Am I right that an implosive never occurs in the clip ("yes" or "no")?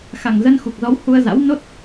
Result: yes